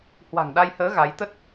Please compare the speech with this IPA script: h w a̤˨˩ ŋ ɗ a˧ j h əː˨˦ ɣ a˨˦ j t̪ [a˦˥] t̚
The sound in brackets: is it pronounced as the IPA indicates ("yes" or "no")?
no